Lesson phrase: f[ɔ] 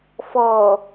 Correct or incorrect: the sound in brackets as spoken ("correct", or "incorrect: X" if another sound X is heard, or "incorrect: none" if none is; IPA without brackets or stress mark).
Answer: correct